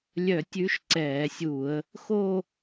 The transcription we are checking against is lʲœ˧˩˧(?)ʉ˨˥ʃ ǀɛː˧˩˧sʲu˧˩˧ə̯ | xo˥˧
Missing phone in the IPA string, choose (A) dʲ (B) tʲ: B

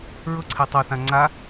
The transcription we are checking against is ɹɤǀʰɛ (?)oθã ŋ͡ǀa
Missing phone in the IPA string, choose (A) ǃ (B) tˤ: B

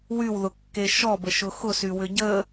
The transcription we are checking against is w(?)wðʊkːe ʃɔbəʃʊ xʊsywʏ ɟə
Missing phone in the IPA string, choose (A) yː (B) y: B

